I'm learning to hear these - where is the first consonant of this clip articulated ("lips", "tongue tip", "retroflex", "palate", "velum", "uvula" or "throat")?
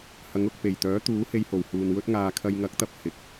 throat